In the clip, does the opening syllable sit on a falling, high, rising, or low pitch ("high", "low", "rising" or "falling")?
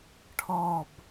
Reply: falling